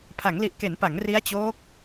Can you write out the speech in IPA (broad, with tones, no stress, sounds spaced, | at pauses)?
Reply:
pʰ a˩˦ ŋ l i˨˩ ʔ k e˩˦ n p a˩˦ ŋ r i˦˥ a̯ t͡ɕ oː˦˥ k̚